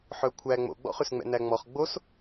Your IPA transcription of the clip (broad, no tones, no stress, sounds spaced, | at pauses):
ħ œ kʷʰ æ ŋ͡m o̰ ɡ͡b ɔ̰ χ ʉ s ŋ͡m ɛ̰ n æ ŋ͡m ɔ χ ɡ͡b o s